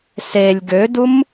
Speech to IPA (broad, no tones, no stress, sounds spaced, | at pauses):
s e lʲ ɡ ø d u m